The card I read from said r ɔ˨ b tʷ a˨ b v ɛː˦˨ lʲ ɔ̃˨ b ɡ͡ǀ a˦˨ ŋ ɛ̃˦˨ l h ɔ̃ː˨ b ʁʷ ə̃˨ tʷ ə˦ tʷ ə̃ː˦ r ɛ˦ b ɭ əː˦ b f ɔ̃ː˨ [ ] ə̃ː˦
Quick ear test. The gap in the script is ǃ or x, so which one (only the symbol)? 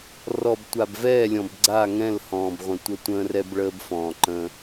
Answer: ǃ